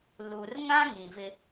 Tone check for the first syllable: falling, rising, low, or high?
low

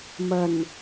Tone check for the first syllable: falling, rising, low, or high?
low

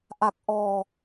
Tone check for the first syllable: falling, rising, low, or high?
low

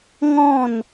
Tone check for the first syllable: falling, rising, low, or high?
falling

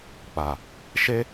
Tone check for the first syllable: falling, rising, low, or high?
low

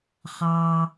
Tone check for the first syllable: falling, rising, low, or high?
low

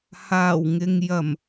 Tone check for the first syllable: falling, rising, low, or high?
low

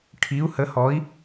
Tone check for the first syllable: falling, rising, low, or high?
rising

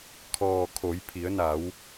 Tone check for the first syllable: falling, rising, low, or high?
low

